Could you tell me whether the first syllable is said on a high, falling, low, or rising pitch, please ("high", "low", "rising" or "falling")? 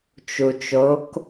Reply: low